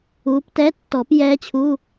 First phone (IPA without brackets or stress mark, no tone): uː